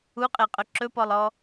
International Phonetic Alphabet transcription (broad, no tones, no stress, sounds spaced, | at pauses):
u qʼ e qʼ ɵ ǁ ɵ p ɔ lˠ ɔ